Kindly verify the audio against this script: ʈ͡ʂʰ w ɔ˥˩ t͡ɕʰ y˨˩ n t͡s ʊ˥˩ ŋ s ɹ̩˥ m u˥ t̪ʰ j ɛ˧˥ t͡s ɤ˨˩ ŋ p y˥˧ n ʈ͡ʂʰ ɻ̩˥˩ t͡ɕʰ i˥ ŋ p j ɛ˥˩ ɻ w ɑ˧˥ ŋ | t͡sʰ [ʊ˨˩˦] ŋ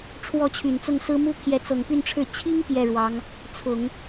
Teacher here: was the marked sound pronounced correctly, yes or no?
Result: yes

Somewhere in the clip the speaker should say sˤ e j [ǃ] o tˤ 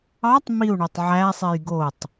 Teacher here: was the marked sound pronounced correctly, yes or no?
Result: no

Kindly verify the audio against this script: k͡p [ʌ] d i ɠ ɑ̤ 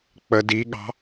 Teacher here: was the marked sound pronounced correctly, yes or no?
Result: no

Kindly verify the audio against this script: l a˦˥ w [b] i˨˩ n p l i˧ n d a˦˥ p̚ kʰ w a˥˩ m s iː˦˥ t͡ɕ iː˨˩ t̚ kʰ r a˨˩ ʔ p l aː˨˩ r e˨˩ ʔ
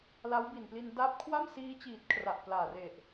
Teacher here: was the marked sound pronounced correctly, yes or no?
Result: yes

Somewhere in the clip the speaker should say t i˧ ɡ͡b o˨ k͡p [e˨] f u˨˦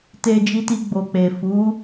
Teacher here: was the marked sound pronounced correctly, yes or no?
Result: yes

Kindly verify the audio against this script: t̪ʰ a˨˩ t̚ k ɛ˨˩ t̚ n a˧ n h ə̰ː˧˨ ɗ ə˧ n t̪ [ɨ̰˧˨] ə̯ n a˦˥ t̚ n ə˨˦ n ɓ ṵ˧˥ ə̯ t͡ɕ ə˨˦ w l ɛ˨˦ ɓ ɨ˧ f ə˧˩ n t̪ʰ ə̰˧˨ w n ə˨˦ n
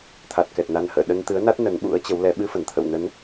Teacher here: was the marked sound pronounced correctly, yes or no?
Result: no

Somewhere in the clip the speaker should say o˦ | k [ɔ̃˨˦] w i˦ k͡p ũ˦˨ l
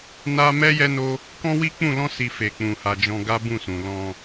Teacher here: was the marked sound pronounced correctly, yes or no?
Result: no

